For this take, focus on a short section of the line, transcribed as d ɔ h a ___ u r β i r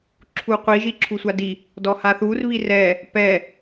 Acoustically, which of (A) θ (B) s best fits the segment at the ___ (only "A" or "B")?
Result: A